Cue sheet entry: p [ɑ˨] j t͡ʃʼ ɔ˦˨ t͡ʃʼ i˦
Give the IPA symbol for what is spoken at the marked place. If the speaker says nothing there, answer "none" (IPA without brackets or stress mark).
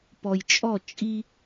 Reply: ɔ˨